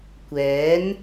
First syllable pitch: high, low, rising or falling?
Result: rising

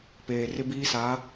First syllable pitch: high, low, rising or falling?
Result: low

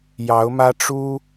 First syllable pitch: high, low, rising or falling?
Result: rising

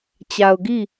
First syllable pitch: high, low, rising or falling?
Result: low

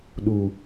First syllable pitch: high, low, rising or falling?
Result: high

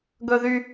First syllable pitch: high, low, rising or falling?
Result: high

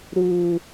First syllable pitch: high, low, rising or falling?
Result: high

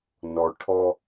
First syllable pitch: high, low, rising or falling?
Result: low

